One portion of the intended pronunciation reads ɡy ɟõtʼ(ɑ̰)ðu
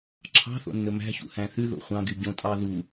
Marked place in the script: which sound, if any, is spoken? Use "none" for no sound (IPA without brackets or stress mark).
ɑ